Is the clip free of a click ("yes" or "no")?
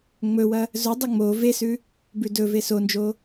yes